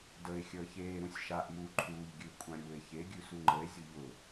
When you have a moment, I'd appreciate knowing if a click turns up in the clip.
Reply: yes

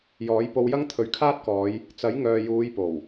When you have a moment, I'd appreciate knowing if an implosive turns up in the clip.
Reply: no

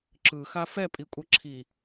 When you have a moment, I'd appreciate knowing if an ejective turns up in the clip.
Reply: yes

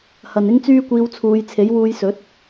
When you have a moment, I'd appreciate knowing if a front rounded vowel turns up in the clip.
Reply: yes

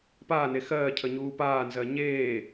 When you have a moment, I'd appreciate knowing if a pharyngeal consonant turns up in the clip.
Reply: no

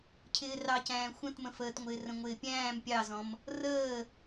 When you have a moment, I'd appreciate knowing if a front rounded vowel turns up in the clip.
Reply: no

